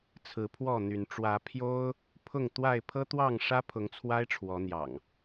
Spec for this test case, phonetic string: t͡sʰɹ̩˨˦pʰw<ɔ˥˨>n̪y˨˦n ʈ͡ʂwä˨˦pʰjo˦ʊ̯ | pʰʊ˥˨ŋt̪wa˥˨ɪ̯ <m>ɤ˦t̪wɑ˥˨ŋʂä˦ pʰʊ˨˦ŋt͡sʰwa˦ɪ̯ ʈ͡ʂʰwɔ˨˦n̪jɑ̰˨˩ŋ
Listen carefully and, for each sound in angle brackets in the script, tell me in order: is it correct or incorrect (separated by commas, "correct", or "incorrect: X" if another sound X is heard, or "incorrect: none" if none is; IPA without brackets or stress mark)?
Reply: correct, incorrect: pʰ